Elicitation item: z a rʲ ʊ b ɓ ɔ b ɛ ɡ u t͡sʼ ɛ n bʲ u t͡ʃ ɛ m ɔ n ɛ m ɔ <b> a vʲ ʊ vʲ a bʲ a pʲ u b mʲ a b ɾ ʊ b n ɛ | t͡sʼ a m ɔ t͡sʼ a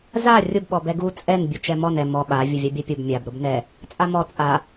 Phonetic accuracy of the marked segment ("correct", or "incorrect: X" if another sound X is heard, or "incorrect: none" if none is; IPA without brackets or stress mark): incorrect: ɓ